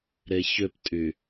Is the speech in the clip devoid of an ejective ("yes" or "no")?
no